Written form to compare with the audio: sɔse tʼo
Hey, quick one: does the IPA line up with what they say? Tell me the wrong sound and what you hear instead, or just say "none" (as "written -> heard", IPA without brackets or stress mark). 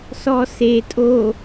none